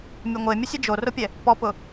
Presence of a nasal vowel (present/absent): absent